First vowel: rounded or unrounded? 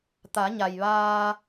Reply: unrounded